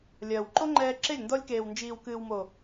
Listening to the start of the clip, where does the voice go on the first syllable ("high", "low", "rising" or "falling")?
low